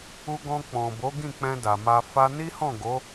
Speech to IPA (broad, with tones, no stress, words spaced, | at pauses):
u˧ɡɔ̃˧k͡pɔ̃˨ bo˨˦ɡĩ˦˨k͡pɛ̃˧ da˨ma˧ fa˧ni˦hɔ̃˦˨ ɡo˨˦